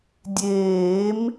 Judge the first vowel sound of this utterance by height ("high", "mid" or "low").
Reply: mid